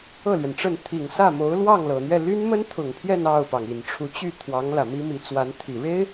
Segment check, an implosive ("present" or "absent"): absent